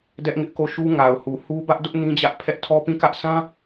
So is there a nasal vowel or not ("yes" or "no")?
yes